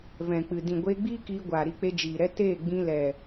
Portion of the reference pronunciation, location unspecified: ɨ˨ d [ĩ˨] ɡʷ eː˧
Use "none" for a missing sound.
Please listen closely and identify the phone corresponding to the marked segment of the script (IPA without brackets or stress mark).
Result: ĩ˨